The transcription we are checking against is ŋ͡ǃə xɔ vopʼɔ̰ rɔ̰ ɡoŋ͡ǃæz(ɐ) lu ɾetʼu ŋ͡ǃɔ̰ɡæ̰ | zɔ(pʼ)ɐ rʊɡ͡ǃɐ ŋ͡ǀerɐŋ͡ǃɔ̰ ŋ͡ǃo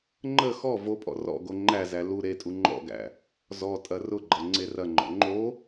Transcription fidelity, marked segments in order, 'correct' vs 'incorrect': incorrect, incorrect

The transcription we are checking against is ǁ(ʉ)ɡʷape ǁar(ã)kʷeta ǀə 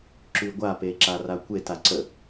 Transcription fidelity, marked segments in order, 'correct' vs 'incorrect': correct, incorrect

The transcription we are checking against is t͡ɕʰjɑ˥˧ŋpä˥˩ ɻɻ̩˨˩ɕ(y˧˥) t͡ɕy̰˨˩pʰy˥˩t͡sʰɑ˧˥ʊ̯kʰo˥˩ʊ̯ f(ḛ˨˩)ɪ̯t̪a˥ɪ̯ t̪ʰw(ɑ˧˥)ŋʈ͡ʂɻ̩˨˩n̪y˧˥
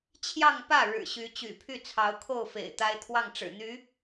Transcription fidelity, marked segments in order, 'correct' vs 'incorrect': correct, correct, incorrect

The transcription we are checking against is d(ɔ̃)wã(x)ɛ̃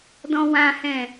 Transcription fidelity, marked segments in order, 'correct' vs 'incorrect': correct, incorrect

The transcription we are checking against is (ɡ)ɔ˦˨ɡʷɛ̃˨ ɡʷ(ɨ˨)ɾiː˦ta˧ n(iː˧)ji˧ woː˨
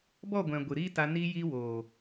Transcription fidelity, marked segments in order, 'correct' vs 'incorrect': incorrect, correct, correct

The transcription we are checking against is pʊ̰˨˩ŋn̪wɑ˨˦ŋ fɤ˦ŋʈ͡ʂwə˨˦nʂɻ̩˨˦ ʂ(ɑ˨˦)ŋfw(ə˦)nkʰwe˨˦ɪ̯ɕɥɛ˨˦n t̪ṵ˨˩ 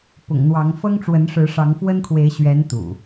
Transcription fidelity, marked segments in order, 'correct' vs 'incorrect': correct, correct

